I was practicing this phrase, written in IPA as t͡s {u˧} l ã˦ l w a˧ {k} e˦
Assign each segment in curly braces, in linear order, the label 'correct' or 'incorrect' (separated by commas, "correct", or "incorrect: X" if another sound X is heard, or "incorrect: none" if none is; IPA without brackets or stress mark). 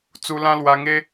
correct, incorrect: ŋ